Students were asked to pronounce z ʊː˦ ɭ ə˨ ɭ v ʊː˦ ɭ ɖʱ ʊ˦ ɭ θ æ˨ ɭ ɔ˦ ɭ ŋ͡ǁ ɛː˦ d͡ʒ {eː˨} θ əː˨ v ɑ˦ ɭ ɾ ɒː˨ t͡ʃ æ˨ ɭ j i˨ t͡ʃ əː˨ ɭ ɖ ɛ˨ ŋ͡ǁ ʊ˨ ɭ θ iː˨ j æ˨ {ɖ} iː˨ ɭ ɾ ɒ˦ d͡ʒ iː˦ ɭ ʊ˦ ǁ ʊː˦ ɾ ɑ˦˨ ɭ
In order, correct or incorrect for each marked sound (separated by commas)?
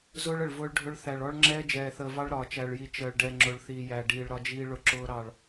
incorrect, correct